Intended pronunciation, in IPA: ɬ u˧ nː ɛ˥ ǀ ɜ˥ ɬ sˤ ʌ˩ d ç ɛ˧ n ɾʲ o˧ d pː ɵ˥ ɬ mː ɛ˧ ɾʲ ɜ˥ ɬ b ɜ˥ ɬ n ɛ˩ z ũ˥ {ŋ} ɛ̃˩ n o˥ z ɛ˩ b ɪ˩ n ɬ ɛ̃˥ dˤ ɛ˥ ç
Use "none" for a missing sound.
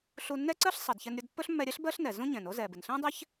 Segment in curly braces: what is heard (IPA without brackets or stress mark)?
ɲ